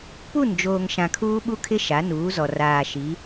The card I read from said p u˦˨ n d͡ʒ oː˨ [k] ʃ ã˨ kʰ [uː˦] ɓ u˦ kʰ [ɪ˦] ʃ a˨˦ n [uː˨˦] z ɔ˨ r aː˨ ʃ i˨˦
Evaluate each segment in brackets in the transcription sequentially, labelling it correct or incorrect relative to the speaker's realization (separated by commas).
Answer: incorrect, correct, correct, correct